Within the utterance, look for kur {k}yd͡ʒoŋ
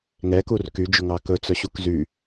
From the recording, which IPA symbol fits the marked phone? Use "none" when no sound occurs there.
k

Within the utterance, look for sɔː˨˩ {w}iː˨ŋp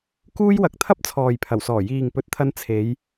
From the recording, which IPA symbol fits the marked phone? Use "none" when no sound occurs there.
j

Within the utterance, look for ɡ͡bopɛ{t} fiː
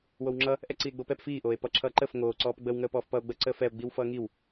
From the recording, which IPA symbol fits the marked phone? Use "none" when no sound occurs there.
p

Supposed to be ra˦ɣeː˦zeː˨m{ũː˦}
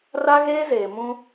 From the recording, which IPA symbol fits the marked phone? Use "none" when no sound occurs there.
ũ˦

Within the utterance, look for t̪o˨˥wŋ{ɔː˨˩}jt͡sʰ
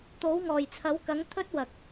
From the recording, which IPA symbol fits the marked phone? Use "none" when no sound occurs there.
ɔː˨˩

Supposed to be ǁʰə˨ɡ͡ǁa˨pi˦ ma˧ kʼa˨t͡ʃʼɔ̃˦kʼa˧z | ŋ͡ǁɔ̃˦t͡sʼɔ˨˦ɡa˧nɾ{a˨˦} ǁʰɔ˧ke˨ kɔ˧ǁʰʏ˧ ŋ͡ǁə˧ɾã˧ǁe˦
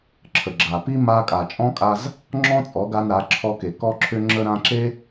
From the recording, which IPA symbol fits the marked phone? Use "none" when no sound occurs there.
a˨˦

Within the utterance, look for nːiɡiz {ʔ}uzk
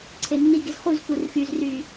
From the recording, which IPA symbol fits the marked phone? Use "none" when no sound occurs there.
χ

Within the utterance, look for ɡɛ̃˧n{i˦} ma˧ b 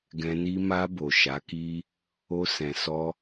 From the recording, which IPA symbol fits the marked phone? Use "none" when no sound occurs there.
i˦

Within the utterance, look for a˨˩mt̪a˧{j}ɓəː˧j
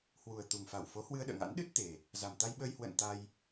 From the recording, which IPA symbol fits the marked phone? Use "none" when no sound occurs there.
j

